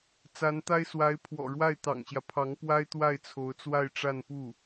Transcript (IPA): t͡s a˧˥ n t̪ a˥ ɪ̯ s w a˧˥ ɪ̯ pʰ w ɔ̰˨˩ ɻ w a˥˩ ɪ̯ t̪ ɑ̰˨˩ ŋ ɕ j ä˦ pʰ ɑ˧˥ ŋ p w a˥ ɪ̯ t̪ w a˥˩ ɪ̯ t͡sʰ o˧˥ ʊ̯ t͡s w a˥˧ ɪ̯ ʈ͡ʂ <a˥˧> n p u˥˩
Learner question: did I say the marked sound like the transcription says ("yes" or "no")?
yes